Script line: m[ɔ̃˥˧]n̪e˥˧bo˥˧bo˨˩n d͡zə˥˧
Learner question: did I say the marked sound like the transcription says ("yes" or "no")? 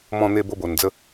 yes